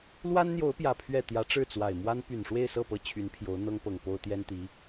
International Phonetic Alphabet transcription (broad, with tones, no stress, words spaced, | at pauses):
lwa˥nn̪jo˧˥ʊ̯pjä˨˩ pʰɥɛ˥˩ t̪jä˧˥ʈ͡ʂɻ̩˥˩t͡swa˨˩ɪ̯mwa˥n py˨˩nʂwe˥˧ɪ̯sɤ˥˩ pɤ˥ t͡ɕʰy˧˥npʰjo˧˥ʊ̯ n̪ɤ˥ŋpɤ˨˩ŋ po˥ʊ̯ t̪jɛ˥nt̪i˧˥